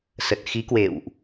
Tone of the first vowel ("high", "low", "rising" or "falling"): low